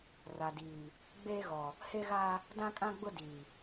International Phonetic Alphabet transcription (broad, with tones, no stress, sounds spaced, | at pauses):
r a˨ d iː˨ | ɡ͡b eː˦ ɣ ɔ˨ | h e˦ ɣ a˦ | d ã˦ kʼ ã˦ ɡ͡b ʊ˦ d iː˨